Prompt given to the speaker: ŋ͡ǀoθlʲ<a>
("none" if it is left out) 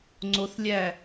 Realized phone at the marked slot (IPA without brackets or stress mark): æ